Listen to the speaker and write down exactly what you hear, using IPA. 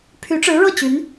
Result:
pʰ y˧˥ ʈ͡ʂ ɻ̩˧˥ ɻ ɤ˥˩ t͡ɕ y˧˥ n

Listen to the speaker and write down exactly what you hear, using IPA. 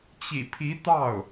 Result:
t͡ɕ ḭ˨˩ pʰ i˧˥ t̪ ɑ˥˩ ʊ̯

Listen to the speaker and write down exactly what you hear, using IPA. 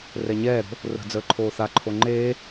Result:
r ɛ ɲ ɛː ɾ o̤ | r ə̤ d͡z əː ǃʰ oː θ a ǃʰ o ŋ͡ǃ eː

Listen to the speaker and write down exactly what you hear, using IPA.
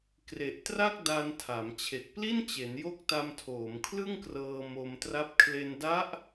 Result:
k r e˨˩ ʔ t r a˥˩ k̚ d a˧ n tʰ a˩˦ m t͡ɕʰ e˨˩ k̚ p l i˥˩ n t͡ɕ e˩˦ n j o˦˥ k̚ t a˧ m tʰ oː˩˦ m kʰ l ɯ˥˩ ŋ k r ɤː˧ m o˧ m t r a˦˥ p̚ kʰ l e˧ n d a˦˥ ʔ

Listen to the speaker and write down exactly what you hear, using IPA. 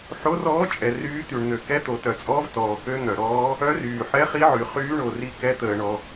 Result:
ħ o˧˥ r ɔː˧˥ t͡ʃʼ ɛ˩ r yː˧˥ t̪ y˩ ɳ n̪ ø˩ k ɛ˧˥ t̪ o˩ t œ˩ t͡sʼ ɔː˧˥ v t ɔː˩ k ø˧˥ n̪ œ˩ ɾ ɔː˧˥ | œ˧˥ r yː˩ ħ ɛ˧˥ χ i˧˥ ʕ y˩ χ yː˧˥ ɳ o˩ r i˧˥ k ɛ˧˥ t̪ əː˩ ɳ ɔ˩

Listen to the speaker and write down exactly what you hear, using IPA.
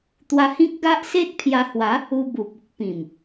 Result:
t̪ w a˧ h ĩ˦ k̚ ɡ a˦ ʔ s e˦ t̚ pʰ j a˧ h w a˨˦ | u˧ b u˨ p̚ u˦ k̚ p ĩ˨˩ m

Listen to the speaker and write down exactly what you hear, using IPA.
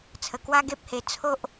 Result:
t͡sʰ ə˨˩ k w a˦ ɡ e˦ p̚ h e˧ t͡sʰ o˦ ʔ

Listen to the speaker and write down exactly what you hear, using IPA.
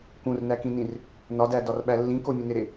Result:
k ũ r n æ k ĩ n ĩ r | n ɒ d æ d ɒ r ɓ æ lː ĩ k o mʲ ẽ n e ɾ e

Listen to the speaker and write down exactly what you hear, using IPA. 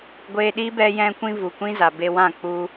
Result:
ɡʷ eː˧ ɗ i˦ b ɛ˧ j ɛ̃˧ kʷ ĩ˧ v u˨ kʷ ĩ˦ z a˨ b e˧ w ã˦˨ k͡p u˧

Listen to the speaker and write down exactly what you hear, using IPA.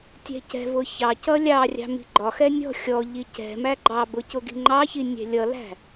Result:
tʲ ɛ̤ c ɛ̤ v ʊ ç ɑ c ʌ lʲ ɑ rʲ ɑ̤ m i̤ ɡ͡ǃ ɒ x ɛ nʲ ɔ̤ xʲ ɔ ʎ i c ɛ̤ m æ ɡ͡ǃ ɑ b ʊ c ʊ ɡ i̤ ŋ͡ǃ ɑ ç i nʲ ɛ̤ lʲ ʌ l æ̤

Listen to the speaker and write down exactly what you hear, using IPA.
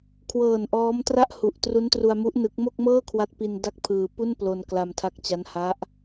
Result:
kʰ w ɤː˨˩ n ʔ ɔː˦˥ m t r a˥˩ ʔ h u˨˩ ʔ t r u˦˥ n t r u˧ a̯ m u˦˥ ʔ n ɯ˦˥ k̚ m o˥˩ k̚ m ɤː˥˩ kʰ w a˦˥ t̚ p i˧ n d a˥˩ k̚ pʰ ɯː˧ p u˥˩ n p l o˧ n k l a˧ m tʰ a˦˥ k̚ t͡ɕ a˦˥ n h a˦˥ ʔ

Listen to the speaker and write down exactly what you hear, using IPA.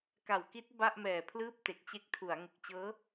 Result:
k a˨˩ w k i˦˥ t̚ b a˥˩ ʔ m ɛː˨˩ pʰ l ɯː˥˩ p̚ t e˨˩ k̚ t͡ɕ e˦˥ k̚ tʰ u˩˦ a̯ ŋ u˨˩ k̚ t͡ɕ ɤː˦˥

